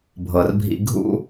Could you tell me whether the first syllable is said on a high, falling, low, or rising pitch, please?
low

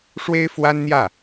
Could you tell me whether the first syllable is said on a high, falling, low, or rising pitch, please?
high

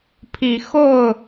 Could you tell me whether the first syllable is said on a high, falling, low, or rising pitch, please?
low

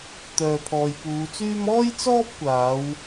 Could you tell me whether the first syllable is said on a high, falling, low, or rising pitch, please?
low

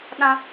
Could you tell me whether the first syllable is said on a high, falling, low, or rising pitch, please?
high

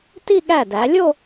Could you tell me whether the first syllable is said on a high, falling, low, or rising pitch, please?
falling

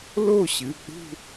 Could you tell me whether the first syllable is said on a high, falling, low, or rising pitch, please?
falling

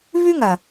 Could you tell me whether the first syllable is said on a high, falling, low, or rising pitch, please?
high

